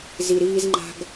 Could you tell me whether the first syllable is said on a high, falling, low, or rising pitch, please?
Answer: low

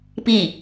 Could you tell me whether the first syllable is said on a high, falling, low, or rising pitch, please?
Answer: falling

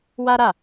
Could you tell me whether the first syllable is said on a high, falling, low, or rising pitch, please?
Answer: high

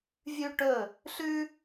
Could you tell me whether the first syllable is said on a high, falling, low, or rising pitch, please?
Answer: high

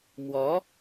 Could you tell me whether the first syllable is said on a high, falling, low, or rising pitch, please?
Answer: rising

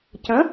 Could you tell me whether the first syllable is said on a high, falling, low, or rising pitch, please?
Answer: rising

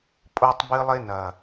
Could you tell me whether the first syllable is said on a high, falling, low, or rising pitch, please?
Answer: high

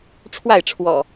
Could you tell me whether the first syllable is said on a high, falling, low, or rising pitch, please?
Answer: falling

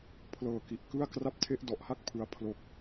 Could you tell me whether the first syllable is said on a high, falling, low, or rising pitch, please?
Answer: low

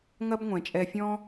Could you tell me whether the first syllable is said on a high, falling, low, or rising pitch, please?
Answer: high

